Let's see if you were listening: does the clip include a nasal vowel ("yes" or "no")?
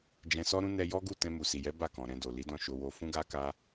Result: yes